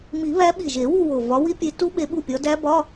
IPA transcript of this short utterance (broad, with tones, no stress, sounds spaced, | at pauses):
m i˨˩˦ β æ˨˦ ɓ i˨˩ ʒ e˨˩˦ w u˦˨ w o˨˩ v ɒ˨˦ w i˦˥ pʲ e˨˦ t u˦˥ ɓ e˨˦ ɓ u˦˨ pʲ ɒ˨˦ d æ˦˥ b ɒ˧˥˧